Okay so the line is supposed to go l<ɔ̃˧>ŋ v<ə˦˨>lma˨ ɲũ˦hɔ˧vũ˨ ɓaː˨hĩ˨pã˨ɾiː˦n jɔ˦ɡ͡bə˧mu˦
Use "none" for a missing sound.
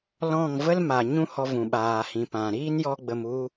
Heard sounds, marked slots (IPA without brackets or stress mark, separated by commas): ɔ̃˦˨, ə˦